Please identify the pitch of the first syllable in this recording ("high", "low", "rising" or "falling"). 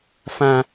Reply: high